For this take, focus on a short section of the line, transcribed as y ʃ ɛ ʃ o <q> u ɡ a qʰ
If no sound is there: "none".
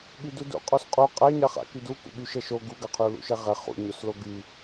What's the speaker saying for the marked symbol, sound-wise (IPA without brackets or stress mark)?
ɡ